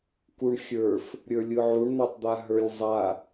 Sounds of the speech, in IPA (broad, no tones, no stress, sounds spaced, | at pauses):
k u ɳ xʲ ə˞ f | ɾʲ ə˞ lʲ ɯ ʕ u ɳ n̪ a tˤ d̪ a ɦ ə˞ lʲ zˤ a